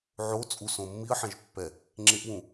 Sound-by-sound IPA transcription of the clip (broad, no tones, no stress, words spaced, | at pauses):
ʕo t͡sʼusõ mːiə̯ħɛ̃ʒpːɛ | ŋ͡ǁeʔwũ